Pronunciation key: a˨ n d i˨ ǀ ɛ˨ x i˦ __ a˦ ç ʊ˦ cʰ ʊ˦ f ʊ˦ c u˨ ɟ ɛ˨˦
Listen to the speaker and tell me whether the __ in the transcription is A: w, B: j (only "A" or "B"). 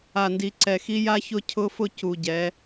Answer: B